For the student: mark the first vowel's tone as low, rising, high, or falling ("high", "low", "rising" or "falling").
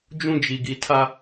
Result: high